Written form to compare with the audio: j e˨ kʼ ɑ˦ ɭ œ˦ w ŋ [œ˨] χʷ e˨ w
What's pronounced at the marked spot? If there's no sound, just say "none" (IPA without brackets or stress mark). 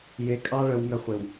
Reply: œ˦